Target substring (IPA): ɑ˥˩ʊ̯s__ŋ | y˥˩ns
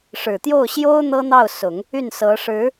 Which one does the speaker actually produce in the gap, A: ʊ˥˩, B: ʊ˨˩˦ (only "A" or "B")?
B